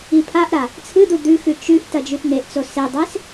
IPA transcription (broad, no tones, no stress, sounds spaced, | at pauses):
i pʰ a ʔ ɾ a | t͡sʰ ɨ d̪ u d̪ ʉ x ʉ t͡ʃ ʉ ʔ t ɐ d͡ʒ ʉ t n̪ e ʔ t͡s o s e dˤ e s